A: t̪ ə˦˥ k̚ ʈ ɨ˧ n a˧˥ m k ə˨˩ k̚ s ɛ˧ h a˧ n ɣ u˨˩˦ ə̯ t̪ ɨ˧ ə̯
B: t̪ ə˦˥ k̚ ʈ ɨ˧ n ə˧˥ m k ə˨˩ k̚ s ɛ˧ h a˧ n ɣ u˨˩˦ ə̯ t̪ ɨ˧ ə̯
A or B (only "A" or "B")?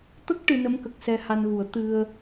B